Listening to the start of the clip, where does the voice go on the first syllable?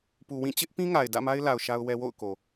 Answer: low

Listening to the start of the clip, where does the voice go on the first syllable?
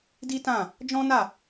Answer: high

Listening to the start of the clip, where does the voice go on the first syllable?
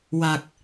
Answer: low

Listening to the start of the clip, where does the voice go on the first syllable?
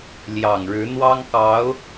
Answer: low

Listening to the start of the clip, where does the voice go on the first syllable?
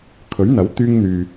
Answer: rising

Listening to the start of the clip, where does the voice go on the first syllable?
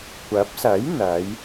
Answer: rising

